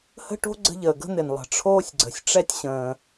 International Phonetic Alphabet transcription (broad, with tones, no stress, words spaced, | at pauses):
hə̤˥ʈo̤˥ ɡ͡ǀə̤˥ʎəː˩ ɡə̤˥n̪ɪ˩nlˠə̤˩ ʈ͡ʂʰoː˥sʲɡ͡ǀə̤˩sʲ ʈ͡ʂɛ˥tʲɕə̃ː˩